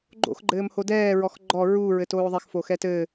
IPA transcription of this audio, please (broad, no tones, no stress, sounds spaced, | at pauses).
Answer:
ɡ͡ǃ o̰ x ɡ͡ǃ ɘː m h o d ɛː ɹ ɔ x ɡ͡ǃ ɔ ɹ u ɹ ɘ t oː ðˤ ɛ x f o x ɛ t ɘː